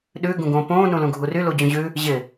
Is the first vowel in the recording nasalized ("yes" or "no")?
no